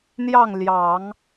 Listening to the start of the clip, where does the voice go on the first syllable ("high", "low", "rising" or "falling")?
falling